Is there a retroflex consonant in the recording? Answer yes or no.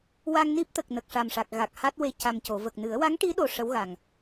yes